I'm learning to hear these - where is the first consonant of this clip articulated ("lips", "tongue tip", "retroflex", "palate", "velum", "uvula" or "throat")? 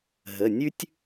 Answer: throat